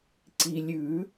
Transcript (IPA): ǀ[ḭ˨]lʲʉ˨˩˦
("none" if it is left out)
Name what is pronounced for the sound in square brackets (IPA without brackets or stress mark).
i˨